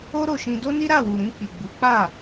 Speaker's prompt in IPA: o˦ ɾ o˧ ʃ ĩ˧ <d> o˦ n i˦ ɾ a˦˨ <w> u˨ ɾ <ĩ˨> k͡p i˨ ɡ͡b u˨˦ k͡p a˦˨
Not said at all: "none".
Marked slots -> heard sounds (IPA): d, w, ĩ˧

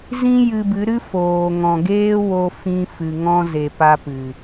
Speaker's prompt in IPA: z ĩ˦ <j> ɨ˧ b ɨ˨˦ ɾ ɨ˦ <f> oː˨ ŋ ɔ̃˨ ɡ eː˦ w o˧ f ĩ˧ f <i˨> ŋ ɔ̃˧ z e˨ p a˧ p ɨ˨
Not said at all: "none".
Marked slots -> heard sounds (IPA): j, f, ɨ˨

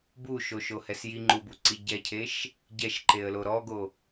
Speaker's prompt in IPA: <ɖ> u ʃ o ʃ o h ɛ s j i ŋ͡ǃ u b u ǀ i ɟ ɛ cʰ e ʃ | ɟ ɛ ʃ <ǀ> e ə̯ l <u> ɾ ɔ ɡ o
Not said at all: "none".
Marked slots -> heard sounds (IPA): b, ǃ, o

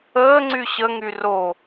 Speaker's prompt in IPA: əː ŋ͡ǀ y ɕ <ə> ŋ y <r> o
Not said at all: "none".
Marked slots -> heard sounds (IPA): ə, r

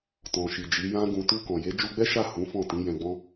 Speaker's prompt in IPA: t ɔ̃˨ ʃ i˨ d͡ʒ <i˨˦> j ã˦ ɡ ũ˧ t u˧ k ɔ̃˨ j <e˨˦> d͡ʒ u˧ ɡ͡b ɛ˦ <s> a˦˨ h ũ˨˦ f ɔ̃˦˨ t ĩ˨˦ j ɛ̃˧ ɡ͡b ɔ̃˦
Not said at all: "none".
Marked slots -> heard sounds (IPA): i˨˦, e˨˦, ʃ

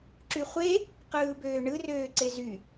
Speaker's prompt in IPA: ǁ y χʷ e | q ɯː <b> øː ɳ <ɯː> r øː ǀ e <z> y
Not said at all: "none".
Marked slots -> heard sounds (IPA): b, ɯ, z

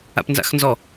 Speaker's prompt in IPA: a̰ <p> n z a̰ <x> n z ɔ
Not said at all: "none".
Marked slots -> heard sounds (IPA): p, x

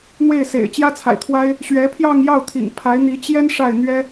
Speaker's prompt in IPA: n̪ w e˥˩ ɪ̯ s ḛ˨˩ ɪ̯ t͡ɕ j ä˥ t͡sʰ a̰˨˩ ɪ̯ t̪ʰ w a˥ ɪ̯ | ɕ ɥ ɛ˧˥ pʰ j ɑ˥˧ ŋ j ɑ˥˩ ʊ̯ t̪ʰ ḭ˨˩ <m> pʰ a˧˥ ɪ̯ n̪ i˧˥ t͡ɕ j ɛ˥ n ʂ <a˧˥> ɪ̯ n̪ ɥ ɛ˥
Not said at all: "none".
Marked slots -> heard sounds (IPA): ŋ, a˥˩

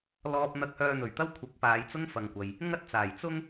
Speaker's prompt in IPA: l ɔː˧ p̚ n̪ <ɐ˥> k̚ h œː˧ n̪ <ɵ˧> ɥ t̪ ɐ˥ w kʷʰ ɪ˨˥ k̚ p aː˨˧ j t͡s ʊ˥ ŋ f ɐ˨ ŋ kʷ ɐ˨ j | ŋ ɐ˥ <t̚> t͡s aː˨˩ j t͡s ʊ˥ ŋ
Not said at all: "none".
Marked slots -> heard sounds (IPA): ɐ˧, ɵ˨˩, t̚

